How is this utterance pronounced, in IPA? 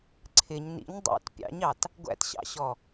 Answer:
ǀʰ ɪ ɲ n ḭ ɲ dˤ ṵ t pʲ ɑ̰ ɲ ɑ t | ɡʷ æ̰ t ɕ ɑ̰ ɕ ɔ

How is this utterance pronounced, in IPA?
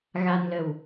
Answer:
ɣ a˧ n l ə˨˩ w

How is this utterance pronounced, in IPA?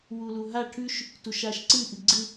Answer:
w u l u ɦ a ʈʰ ʉ ʃ | t u ʃ a ʃ ǀ ɨ ʔ ɨ ɡ͡ǀ ɨ

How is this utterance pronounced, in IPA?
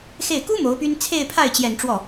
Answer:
x e˥˩ ɪ̯ k u˥ m o˧˥ ʊ̯ p y˥ n t͡sʰ e˥˧ ɪ̯ pʰ a˥˩ ɪ̯ t͡ɕ j ɛ˨˩ n ʈ͡ʂ w ɔ˥˩

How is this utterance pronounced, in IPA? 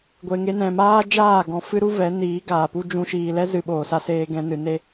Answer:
ɡʷ e˨ ŋ e˧ n ɛ̃˨ m aː˦ d͡ʒ aː˦˨ ɡ ɔ̃˨ f ɨ˦ ɾ u˦ v ɛ˨˦ n iː˨˦ ɡ aː˨ p u˦ d͡ʒ ũ˧ ʃ iː˨ l ɛ˦ z ɨ˨ ɓ oː˨ s a˧ s eː˧ ɡ ɛ̃˧ n ɨ˨ n e˦

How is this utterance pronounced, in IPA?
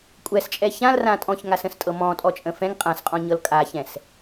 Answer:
kʷʼ ɛ s t͡ʃʼ ɛ ç ã l r ã tʼ ɔ̃ ç ŋ a s ə̃ s tʼ ɤ m ɔ̃ tʼ ɔ t͡ʃʼ ə̃ f ɛ̃ ŋ qʼ ã s qʼ ɔ̃ ɲ ɤ l kʼ a ç ɛ̃ s

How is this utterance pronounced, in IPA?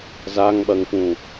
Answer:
z a ŋ ɓ ɐ ŋ f ũ

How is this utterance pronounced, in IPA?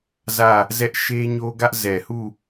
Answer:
z ä˦˨ | z ɛ˦ ʔ ʃ e˦ ɲ o˦ ɡ ä˦ ʔ z ɛ˨ h u˦˨

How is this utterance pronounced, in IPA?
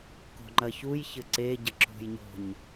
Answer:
k o̤ ŋ͡ǃ ɐ ç u j ç ɘ ǀ e ɟ ɘ ǁ o̤ j ɲ o̤ ɲ

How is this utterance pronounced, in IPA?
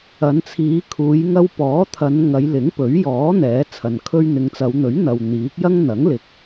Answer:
ɐ˨˧ n t͡sʰ iː˨˧ kʰ uː˨˧ j ŋ ɐ˧ w p ɔː˨˥ t̪ʰ ɐ˨˧ n ŋ ɐ˨˧ j l ɪ˨˥ ŋ p ɵ˨˥ ɥ j ɔː˨˥ n̪ ɛː˨˥ t͡sʰ ɐ˨ n kʰ ɵ˧ ɥ n̪ ɪ˨˧ ŋ t͡s ɐ˨˧ w n̪ ɵ˨˥ ɥ n̪ ɐ˨ w n̪ iː˨˥ k̚ j ɐ˥ ŋ n̪ ɐ˨˥ ŋ l ɪ˨˥ k̚

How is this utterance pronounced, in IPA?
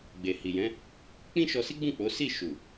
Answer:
ɡ͡b e˨ h i˨ j ɛ̃˨˦ | k͡p ĩ˦ ʃ ɔ˧ s i˦ ɡ͡b ũ˦˨ k͡p o˨˦ s i˦˨ ʃ u˨

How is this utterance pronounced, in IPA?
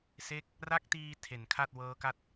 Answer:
s e˦˥ k̚ | r a˦˥ k̚ t iː˧ tʰ e˨˩ n kʰ a˥˩ t̚ w ɤː˦˥ k a˥˩ t̚

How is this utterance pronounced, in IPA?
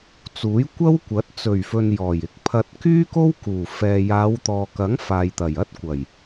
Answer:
t͡s uː˨˥ j kʷ ɐ˥ w kʷ ɐ˨˥ t̚ t͡s ɵ˨˩ ɥ f ɵ˨ n j ɔː˨˩ j ɪ˧ k̚ pʰ ɐ˧ t̚ k yː˥ k o˥ w k uː˨˩ f ɛː˨ j aː˨˧ w t̪ ɔː˨ k ɐ˨˥ ŋ f aː˨ j t̪ ɐ˨˩ j ɐ˥ t̚ kʷ ɐ˨˩ j

